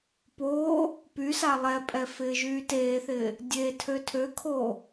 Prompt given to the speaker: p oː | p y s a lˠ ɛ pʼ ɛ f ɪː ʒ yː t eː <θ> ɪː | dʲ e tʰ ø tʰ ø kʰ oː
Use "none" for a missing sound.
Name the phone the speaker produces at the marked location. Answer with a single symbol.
θ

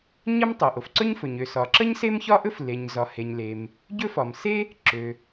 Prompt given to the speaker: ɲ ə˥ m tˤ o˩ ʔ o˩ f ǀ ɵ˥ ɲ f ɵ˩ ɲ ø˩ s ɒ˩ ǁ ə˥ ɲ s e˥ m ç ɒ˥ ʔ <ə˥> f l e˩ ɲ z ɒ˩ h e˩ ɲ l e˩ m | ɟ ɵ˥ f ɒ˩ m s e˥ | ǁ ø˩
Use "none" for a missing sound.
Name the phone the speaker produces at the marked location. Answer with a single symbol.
ɵ˥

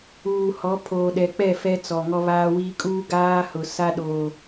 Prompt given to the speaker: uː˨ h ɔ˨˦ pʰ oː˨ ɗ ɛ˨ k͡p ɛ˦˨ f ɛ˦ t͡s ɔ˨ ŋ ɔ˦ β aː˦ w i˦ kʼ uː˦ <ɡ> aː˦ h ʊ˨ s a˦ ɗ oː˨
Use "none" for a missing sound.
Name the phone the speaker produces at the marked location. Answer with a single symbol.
ɡ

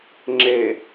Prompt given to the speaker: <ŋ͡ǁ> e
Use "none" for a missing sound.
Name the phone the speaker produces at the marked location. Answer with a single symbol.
ŋ͡ǁ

